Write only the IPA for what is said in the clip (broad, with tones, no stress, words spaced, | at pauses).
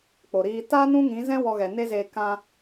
k͡po˨ɾiː˧ ta˦ nũ˦ŋĩ˨˦zɛ̃˦ wɔ˧ɣɛ˨ ne˦zeː˧ kã˧